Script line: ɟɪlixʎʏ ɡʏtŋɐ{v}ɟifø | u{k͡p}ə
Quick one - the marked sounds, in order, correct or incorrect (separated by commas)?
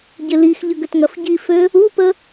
incorrect, incorrect